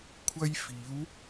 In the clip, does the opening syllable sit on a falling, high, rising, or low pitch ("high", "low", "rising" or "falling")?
high